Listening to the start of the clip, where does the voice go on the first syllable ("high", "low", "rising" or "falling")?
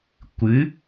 rising